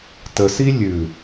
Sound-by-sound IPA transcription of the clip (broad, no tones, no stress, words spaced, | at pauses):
təsi lʲʉ